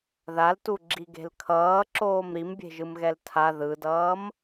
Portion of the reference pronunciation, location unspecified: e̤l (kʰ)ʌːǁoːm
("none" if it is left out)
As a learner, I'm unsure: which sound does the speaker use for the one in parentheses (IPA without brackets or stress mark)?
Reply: kʰ